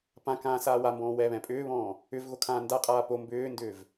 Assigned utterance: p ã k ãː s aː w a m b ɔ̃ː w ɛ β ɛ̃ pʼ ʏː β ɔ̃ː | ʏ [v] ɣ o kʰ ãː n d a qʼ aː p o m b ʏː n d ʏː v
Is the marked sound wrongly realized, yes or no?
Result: no